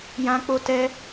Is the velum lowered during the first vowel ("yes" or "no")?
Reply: yes